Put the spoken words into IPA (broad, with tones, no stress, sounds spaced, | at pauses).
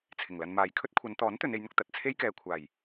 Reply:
t͡sʰ ɪ˨˩ ŋ l ɐ˧ n m aː˨ j kʰ ɵ˥ t̚ kʷʰ ɐ˨˧ n t̪ ɔː˨˥ n t̪ ɵ˨˧ n e˨˧ j n̪ ʊ˧ k̚ t̪ ɐ˨ t̚ t͡sʰ e˥ j k ɛː˨ kʷʰ aː˨˩ j